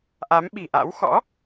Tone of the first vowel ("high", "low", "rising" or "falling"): rising